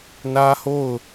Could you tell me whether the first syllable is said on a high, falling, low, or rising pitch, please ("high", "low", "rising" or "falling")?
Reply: high